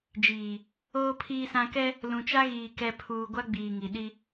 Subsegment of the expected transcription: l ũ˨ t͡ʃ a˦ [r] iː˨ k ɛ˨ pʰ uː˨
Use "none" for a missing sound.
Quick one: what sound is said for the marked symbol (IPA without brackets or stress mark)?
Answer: ɣ